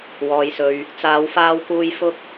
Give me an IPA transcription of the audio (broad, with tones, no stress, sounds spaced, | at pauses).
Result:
w ɔː˨ j s ɵ˨ ɥ | t͡s aː˨˧ w f aː˧ w k uː˧ j f ʊ˧ k̚